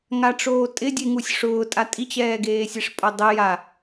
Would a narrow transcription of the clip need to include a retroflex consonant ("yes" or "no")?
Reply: yes